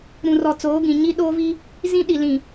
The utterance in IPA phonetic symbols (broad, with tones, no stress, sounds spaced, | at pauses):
ɾ ũ˨ r ɔ˨ t͡s oː˨˦ ɡ ĩ˨ ɲ i˦ ɗ oː˦ v i˦ | z ĩ˦ ɗ i˨ l ĩ˨